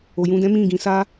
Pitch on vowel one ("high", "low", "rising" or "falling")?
low